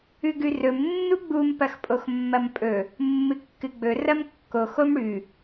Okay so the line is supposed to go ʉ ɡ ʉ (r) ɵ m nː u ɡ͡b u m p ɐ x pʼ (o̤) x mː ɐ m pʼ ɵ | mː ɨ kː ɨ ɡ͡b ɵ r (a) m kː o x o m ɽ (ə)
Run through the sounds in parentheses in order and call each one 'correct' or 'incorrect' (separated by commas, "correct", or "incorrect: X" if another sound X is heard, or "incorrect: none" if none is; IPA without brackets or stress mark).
correct, incorrect: o, incorrect: ɐ, incorrect: ʉ